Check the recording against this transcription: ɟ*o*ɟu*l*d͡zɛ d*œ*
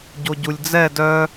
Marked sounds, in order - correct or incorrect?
correct, incorrect, correct

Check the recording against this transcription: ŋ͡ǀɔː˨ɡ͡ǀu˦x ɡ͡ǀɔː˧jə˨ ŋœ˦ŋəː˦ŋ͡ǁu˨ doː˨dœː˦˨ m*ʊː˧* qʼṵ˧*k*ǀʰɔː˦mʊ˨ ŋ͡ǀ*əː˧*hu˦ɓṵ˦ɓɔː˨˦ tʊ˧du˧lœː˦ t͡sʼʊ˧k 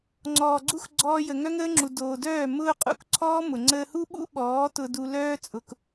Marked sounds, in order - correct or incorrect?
correct, correct, correct

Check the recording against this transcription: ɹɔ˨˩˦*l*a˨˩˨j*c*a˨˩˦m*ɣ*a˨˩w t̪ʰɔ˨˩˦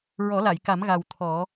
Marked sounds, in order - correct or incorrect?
correct, incorrect, correct

